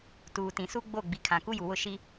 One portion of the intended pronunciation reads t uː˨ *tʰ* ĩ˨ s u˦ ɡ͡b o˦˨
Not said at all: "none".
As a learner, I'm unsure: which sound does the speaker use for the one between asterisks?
t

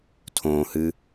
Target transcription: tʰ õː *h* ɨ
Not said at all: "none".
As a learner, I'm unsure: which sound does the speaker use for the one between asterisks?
h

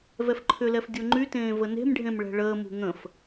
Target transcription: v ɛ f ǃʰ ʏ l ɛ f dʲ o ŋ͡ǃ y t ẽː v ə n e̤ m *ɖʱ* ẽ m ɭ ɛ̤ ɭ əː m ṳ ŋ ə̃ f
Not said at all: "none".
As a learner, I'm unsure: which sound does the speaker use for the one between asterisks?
ɖʱ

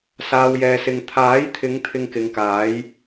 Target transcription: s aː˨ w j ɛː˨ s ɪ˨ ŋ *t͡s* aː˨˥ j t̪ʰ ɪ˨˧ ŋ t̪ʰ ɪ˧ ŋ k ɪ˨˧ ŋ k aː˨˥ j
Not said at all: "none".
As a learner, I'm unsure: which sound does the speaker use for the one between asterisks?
t̪ʰ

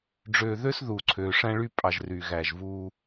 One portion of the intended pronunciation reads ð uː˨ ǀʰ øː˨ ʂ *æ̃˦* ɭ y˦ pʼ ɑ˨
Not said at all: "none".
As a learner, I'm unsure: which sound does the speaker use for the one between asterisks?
æ̃˦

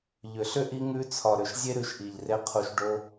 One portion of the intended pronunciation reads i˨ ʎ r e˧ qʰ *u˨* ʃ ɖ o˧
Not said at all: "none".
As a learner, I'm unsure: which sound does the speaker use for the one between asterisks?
u˨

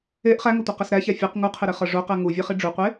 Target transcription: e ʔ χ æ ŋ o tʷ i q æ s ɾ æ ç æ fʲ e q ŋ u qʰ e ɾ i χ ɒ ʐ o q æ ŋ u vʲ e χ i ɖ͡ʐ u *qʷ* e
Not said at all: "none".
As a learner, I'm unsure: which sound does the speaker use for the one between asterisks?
qʷ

